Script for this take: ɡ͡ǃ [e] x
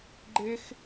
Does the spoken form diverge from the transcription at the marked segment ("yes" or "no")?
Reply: no